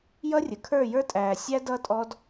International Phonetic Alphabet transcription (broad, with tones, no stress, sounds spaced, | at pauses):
j ʌ˦ rʲ ə˨ kʰ ə˞˦˨ j ə˞˦ tʼ æː˨ sʲ æ˦ d ʌ˦ tʼ ɔ˦ d